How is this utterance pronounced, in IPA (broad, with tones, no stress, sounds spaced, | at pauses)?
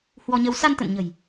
h w ɔ˧ ɲ ə˧ w s a˧ n t̪ ə̰˧˨ n ɲ ə̤˨˩ j